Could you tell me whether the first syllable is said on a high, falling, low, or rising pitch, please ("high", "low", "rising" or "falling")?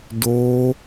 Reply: high